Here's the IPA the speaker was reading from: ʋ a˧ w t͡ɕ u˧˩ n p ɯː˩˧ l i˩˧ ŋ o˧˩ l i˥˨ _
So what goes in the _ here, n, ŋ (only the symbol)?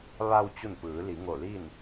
n